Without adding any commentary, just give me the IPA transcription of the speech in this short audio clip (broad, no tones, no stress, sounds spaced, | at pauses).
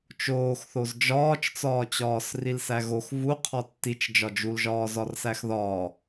t͡ʃ oː x θ o z d͡ʒ ɒː t͡ʃ t͡s ɒː t͡ɕ ɒː s r i l s æ ɣ o x v u qʰ ɒ tː i t͡ʃ d͡ʒ ɒ d͡ʒ u l ʒ ɒː z ɒ r s æ x ð ɒː